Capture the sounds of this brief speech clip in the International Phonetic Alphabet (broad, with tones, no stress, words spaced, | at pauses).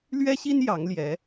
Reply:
lɥɛ˥ɕi˥n jɑ˧˥ŋljɛ˧˥